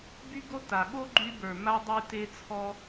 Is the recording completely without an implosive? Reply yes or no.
no